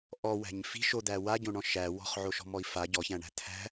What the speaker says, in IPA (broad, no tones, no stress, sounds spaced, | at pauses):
ʔ ɔ w æ̤ ɲ f i̤ ʃ o d̪ æ w a ɟ õ ɳ ɔ̃ ʃ æ w ɔ̤ χ ʕ o ʃ ɔ̤ m ɔ i̯ f a ɟ ɔ ç æ̃ ɳ æ̤ t̪ʰ æ̤